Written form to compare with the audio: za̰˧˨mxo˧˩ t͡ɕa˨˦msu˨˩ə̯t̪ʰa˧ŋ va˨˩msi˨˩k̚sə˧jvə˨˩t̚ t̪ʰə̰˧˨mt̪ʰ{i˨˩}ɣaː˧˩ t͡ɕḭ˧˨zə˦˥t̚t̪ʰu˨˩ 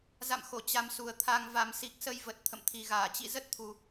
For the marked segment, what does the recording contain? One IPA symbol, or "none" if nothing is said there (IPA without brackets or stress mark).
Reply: i˨˩